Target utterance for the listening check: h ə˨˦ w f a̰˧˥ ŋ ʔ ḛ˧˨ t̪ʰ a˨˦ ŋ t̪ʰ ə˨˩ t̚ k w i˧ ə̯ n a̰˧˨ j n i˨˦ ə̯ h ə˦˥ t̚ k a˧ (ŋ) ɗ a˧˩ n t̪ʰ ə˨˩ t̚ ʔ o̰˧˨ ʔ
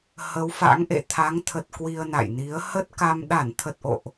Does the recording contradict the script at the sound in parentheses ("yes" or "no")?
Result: yes